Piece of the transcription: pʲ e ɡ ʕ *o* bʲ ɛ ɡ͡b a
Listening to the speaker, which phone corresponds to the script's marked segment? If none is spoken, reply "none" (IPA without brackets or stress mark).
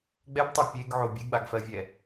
o